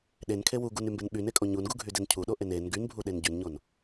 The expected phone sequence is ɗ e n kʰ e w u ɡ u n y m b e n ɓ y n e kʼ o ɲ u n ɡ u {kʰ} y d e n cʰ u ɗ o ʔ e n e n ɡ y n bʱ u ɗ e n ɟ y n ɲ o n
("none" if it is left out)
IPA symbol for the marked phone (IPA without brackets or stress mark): ɡʱ